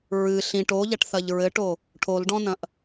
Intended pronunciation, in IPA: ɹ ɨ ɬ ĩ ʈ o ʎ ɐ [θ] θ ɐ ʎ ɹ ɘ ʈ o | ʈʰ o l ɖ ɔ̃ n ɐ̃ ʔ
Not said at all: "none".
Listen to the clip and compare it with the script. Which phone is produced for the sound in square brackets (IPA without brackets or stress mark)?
ʈ